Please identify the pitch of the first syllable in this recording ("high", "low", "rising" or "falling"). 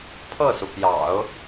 falling